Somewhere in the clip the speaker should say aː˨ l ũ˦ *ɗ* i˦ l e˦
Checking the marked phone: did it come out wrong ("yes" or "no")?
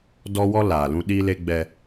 no